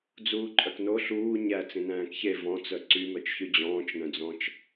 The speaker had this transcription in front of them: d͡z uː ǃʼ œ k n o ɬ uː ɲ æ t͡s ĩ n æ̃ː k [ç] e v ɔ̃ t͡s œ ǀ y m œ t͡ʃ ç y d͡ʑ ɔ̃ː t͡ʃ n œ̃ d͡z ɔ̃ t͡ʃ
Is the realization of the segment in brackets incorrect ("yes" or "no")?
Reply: no